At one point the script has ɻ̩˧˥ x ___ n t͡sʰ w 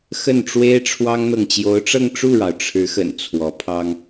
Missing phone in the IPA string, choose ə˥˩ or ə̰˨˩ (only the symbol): ə̰˨˩